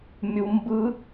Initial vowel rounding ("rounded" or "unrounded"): rounded